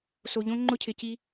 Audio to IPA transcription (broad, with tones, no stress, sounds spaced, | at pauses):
s o˨ ʎ õ˦ ŋ͡ǃ ʊ˦ cʰ ɪ˨ c i˧